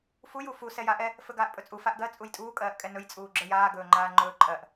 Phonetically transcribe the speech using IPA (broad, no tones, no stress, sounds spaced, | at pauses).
f u j u f u s ɛ j a ʔ ɛ | f ɵ ɡ aː ʔ pʼ ɵ t͡sʼ u f a ʔ ɡ ɜ t͡sʼ u j tʼ uː kʼ ɜː ʔ kʼ ɛ n ɵ j t͡sʼ uː ɡ͡ǁ ə˞ j aː ɡ ɵː ŋ͡ǃ aː ŋ͡ǃ ɵː ǃʼ ɜ ʔ